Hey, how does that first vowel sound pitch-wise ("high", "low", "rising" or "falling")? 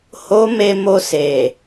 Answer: high